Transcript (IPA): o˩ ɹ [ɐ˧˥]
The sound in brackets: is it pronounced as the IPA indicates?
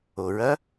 yes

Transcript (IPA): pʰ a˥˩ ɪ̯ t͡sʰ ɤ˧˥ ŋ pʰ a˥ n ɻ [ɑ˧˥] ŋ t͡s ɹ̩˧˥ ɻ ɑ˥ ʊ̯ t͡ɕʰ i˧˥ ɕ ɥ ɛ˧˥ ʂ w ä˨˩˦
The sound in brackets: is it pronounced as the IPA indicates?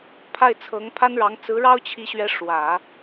yes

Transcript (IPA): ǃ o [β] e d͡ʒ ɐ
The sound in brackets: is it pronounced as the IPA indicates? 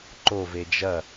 no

